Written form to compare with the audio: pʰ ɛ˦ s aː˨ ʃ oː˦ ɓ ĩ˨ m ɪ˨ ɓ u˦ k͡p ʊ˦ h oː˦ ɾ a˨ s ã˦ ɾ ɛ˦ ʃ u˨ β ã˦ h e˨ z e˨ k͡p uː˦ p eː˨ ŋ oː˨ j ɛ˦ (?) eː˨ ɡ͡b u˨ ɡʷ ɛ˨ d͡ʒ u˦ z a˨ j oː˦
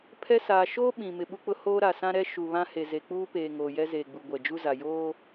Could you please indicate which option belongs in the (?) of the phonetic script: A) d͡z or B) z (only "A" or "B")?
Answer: B